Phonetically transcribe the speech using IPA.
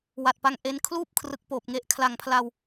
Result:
w a˨˩ t̚ p a˧ ŋ ʔ e˧ n kʰ l uː˥˩ p̚ kʰ r ɯ˨˩ k̚ p oː˨˩ p̚ ŋ e˨˩ ʔ kʰ l a˨˩ ŋ pʰ l a˧ w

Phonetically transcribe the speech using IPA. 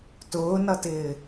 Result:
t ʊː n ʌ t ɪː

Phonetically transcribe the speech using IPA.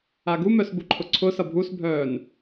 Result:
a ɡ u m œ s b u ǃʰ ʊ ǀʰ ʊ s ʌ bʱ u s bʱ œː n

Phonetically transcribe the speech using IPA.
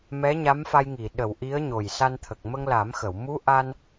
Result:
m ɛ˧˥ ɲ a˧˥ m f a˧ j ŋ i˨˩˨ ɗ ə˨˩˨ w ʔ i˧˥ ə̯ ɲ o˨˩ j s a˧ n t̪ʰ ə˨˩ k̚ m ə˧ ŋ l a˨˩˦ m x ə˨˩˨ w m u˧˥ ʔ a˧ n

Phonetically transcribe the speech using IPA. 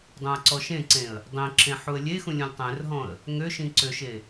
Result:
dˤ ũ ə̯ ǀ ɔ ʃ ẽ ǀ ẽ ə̯ | dˤ ĩ ǁ ẽ ħ u ə̯ lʲ e x ũ lʲ ũ lʲ tˤ ẽ r ɦ ɔ̃ ə̯ | ŋ ø ʃ ĩ ǀ ø ʃ e

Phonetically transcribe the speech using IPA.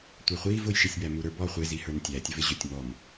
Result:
tʷ æ χʷ iː v ʊ j ʃ i sʲ b æ m u ɾ ə˞ b ɔ χʷ ɪ z i h ə˞ n tʲ æ tʲ ə v ɪ ʑ ʊ tʲ m ɔ m

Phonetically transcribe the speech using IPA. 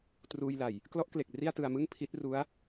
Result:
t r uː˧ j l a˨˩ j | k l ɔ˦˥ ʔ k l e˨˩ k̚ r i˥˩ a̯ t ɯ˧ a̯ m ɯ˥˩ ŋ pʰ i˦˥ t̚ r u˦˥ a̯

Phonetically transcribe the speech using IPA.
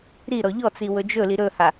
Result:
ɾ i ɾ ɔ ʎ ɔ t͡s i w ɵ d͡ʒ ɵ l i ɾ ɵ h a

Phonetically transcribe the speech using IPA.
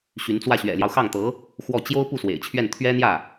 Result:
ɕ y˧˥ n t͡s w ä˥˩ ɕ ɥ ɛ̰˨˩ l j ɑ˦ ʊ̯ x ɑ˥˩ ŋ t̪ ɤ˧˥ | x w ɔ˥˩ t͡ɕ j o˥ ʊ̯ p u˥˩ s w ḛ˨˩ ɪ̯ t͡ɕʰ ɥ ɛ˥˩ n t̪ʰ ɥ ɛ˥ n̪ j ä˥˩

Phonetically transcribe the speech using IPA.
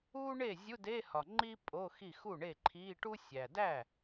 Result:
u˥ ɳ e˥˩ zʲ u˧˥˧ d e˧˥˧ h ɒ˨˩ ŋ͡ǃ i˥ pʼ o˧˥˧ x i˥˩ x u˥˩ ɳ e˥˩ ǃʰ iː˧˥˧ ʈ u˥ sʲ æ˨˩ d æ˥˩

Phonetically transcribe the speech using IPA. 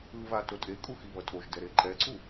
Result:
ɯ β a t o tʼ e kʼ u x i β ʌ tʼ o ʒ d ɛ ɾ e ǃ ɛ ǀ u

